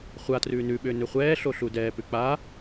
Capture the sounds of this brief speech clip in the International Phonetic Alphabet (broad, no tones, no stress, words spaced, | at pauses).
χʷatrʉː nʉɓʏː nʏχʷɛːɬo ɬudɛːpʉ k͡pa